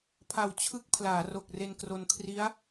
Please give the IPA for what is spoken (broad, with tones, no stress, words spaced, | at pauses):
pʰa˨˩w t͡ɕʰɯ˦˥k̚ pʰlaː˩˦ro˨˩k̚ re˧nkro˧n kʰri˦˥a̯